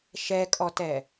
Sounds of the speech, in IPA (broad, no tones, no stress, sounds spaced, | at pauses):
ʃ ɛ kʼ ɔ t ɛ